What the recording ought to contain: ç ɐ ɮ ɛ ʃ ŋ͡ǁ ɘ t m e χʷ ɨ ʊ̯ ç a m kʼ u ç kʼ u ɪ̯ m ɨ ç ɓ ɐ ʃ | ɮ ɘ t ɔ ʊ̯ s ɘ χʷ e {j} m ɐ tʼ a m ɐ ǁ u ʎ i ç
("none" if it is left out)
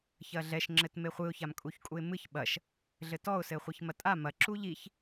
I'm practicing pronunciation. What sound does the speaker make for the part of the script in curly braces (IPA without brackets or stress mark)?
ç